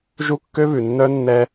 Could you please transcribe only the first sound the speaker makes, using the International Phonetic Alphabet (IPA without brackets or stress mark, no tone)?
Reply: ʒ